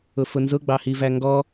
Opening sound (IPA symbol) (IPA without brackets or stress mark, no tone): ʊ